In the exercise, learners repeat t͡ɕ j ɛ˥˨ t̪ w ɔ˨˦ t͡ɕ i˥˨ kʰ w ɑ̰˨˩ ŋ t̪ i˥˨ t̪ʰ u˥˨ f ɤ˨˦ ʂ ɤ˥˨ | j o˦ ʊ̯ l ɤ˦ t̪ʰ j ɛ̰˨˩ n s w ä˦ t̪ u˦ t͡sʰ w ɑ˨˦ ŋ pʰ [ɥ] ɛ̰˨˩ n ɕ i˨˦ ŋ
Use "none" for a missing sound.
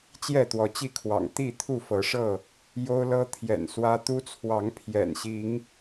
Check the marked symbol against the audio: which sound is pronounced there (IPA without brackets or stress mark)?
j